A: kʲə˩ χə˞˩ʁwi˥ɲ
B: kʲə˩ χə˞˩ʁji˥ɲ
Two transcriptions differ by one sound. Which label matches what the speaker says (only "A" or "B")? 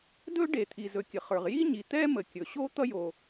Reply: B